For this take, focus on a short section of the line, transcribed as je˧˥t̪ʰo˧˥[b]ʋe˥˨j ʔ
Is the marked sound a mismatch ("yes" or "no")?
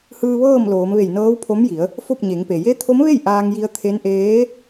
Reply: yes